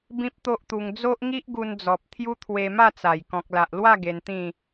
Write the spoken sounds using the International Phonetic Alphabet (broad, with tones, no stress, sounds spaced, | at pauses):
b ĩ˦ p̚ t̪ o˦ ʔ t̪ u˧ ŋ d͡z o˦ ʔ ŋ i˦ ʔ ɡ u˧ n d͡z ɔ˨ p̚ t̪ʰ j u˦ t̪ʰ w e˧ m a˥˧ t͡s a˨˩ j k ɔ̃˨ k̚ l a˨ ʔ l w a˥˧ ɡ e˧ n t̪ ĩ˥˧